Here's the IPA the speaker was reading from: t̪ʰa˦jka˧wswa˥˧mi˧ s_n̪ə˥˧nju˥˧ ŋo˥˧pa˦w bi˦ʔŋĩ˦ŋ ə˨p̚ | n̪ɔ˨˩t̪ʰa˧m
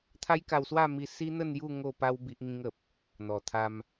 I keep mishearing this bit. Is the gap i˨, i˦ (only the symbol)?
i˦